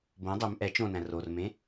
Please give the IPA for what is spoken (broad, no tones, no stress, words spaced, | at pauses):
bõ dˤøm ʔɛ t͡ʃõnæ̃ rormẽ